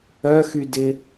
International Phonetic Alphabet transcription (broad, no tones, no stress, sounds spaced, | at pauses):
œ x y d ɪ